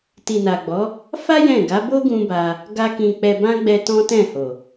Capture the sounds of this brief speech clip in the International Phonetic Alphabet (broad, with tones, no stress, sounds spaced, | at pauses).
t i˨ n a˨ ɡ͡b ɔ˨˦ | f a˦ j ɛ̃˦˨ ɡ a˨˦ b o˦ ɡ ũ˦ b a˧ | ɡ a˦ k ĩ˧ k͡p ɛ˧ b ã˦ ɡ͡b ɛ˧ t ɔ̃˦ t ɛ̃˦˨ h o˨